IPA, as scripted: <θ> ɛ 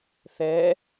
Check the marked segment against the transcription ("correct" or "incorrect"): correct